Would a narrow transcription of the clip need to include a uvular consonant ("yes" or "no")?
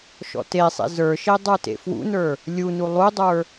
no